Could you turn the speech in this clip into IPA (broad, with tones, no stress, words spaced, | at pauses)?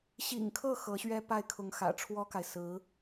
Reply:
ɕḭ˨˩ŋkʰɤ˥˩ xɤ˧˥ɕɥɛ˥ pa˥˩ɪ̯kʰʊ˧˥ŋ xä̰˨˩ʈ͡ʂʰwɔ˥ka˨ɪ̯sɹ̩˧˥